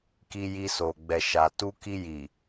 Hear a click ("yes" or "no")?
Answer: no